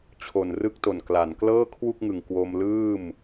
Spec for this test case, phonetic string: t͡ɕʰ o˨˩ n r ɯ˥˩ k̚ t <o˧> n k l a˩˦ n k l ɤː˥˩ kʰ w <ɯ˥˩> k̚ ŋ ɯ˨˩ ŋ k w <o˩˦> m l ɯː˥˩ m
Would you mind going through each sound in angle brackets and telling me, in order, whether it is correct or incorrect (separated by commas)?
incorrect, incorrect, incorrect